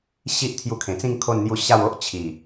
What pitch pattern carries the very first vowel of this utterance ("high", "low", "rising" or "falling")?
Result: high